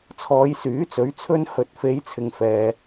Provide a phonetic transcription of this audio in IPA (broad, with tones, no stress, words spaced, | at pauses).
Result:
t͡sʰɔː˨˧jsyː˨˥t͡sɵ˨˥ɥ t͡sʰɵ˧nhɵ˨˥t̚fe˨˧j t͡sʰɪ˨ŋfɛː˨